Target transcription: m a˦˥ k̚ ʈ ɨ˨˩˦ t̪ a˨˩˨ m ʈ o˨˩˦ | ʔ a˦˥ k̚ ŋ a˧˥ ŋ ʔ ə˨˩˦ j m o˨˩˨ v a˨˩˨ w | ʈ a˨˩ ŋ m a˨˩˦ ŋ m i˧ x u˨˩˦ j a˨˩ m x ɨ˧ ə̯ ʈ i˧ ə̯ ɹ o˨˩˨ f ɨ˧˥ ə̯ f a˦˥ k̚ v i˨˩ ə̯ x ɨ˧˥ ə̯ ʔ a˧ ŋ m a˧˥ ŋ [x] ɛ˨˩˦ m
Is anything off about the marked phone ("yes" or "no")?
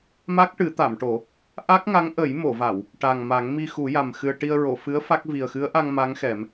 no